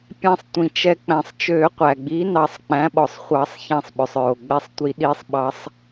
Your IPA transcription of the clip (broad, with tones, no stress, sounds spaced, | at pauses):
pʲ æ̃˧˩ sˤ tʷ ĩ˩ t͡ʃ ɛ˨˩˦ k͡p æ̃˩ sˤ t͡ʃ ø˨˩˦ qʷ æ˩ ɡ͡b i˩˥ n ɑ˨˩˦ sˤ k͡p æ̃˩˥ ɓ ɔ˩ sˤ χʷ ɑ˨˩˦ sˤ ç æ̃˧˩ sˤ ɓ œ˩ sˤ ɹ o˩ ɡ͡b ɛ˧˩ sˤ tʷ i˨˩˦ ɗ i˨˩˦ sˤ ɓ ɑ˨˩˦ sˤ